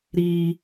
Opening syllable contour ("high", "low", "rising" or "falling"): high